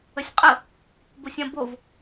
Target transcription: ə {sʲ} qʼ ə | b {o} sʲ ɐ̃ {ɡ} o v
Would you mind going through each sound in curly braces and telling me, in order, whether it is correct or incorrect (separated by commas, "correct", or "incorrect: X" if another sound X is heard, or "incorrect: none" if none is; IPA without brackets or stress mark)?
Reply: correct, correct, incorrect: b